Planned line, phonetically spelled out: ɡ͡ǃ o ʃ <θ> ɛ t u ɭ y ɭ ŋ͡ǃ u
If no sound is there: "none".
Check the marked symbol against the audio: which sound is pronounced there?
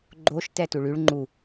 t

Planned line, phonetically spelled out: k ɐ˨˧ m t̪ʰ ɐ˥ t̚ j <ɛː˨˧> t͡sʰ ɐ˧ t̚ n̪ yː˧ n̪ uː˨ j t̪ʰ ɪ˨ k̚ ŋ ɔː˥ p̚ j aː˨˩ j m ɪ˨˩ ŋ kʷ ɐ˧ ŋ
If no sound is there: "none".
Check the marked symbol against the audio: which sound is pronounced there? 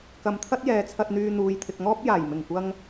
ɛː˨˧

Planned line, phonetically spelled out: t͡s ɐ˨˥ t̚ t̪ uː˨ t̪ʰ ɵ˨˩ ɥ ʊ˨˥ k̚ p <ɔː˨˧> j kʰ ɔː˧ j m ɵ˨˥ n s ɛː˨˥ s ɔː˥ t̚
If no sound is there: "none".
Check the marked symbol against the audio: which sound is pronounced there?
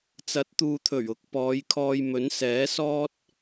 ɔː˨˧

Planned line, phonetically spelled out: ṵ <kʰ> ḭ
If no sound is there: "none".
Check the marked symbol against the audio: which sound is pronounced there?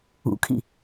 kʰ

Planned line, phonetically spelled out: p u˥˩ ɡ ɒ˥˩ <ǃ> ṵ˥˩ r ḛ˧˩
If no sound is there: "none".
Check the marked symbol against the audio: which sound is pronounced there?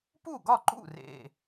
ǃ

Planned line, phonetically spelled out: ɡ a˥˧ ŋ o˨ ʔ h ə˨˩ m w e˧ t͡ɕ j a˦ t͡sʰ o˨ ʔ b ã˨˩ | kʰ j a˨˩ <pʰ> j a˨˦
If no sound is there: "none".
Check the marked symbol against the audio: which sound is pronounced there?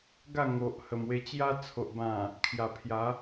pʰ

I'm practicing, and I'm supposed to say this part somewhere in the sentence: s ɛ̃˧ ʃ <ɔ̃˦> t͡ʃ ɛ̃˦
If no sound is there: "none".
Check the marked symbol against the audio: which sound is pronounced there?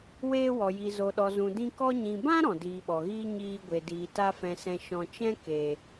ɔ̃˧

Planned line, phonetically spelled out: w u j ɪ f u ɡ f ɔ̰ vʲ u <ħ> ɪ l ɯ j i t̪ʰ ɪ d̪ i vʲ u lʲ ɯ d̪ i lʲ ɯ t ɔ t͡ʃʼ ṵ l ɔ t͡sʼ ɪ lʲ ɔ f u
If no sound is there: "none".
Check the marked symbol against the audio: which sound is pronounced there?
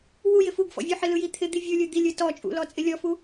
ħ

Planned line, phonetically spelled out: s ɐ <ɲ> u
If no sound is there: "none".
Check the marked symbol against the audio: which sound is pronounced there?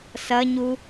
ɲ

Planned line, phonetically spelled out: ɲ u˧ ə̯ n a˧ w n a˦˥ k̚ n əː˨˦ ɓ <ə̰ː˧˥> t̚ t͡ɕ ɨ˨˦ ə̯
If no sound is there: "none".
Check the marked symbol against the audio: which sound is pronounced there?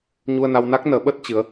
əː˦˥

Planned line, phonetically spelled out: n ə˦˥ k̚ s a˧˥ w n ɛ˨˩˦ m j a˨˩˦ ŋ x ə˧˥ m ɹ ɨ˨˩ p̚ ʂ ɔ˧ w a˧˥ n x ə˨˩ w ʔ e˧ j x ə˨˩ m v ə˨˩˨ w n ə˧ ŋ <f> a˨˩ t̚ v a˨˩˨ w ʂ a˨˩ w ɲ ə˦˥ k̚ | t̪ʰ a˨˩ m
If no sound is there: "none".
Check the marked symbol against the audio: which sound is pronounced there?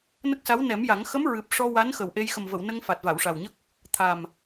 f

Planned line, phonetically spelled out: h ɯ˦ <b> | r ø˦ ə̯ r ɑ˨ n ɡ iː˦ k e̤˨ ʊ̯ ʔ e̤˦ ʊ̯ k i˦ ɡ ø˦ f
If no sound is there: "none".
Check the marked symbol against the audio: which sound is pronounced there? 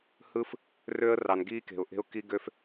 f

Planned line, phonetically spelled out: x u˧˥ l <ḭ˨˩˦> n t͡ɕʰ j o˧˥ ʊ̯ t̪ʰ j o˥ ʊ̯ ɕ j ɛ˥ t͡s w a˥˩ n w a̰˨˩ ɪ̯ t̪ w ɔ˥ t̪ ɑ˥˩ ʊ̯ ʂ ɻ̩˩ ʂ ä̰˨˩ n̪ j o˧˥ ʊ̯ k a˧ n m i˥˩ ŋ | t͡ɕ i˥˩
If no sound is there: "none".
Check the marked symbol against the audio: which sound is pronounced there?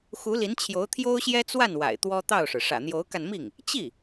i˧˥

